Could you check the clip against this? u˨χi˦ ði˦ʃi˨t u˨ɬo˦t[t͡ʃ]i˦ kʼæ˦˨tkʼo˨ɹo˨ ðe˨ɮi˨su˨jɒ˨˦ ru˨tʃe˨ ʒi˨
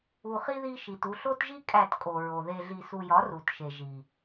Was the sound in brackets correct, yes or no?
no